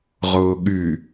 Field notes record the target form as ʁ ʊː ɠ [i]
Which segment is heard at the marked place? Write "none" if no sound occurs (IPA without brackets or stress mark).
y